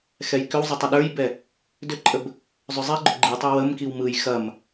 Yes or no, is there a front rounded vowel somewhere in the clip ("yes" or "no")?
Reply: yes